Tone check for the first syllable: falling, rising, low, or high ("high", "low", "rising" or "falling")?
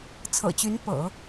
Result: low